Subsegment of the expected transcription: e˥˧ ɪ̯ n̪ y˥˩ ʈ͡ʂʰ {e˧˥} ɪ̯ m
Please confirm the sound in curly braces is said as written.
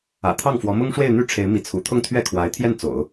yes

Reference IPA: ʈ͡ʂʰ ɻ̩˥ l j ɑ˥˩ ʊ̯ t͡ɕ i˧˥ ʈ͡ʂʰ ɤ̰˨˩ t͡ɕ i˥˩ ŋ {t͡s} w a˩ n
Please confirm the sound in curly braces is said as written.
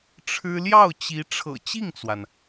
yes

